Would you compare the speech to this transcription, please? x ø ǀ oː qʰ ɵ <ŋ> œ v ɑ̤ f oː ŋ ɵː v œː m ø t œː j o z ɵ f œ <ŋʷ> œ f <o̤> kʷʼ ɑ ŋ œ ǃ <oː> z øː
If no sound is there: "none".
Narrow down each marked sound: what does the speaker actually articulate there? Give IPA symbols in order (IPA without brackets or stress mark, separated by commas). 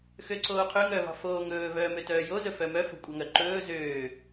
ŋ, m, o̤, ɵː